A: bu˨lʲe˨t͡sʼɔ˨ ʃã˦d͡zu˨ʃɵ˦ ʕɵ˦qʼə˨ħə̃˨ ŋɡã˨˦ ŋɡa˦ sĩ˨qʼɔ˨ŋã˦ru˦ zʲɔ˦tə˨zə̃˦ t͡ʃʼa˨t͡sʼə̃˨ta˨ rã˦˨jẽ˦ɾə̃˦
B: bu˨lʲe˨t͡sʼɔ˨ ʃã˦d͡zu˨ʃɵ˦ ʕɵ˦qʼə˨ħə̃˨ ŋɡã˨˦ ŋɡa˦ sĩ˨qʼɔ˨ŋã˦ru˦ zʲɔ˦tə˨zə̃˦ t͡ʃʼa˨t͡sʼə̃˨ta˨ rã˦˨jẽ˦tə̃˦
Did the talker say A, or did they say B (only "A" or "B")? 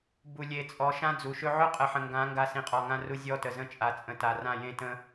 B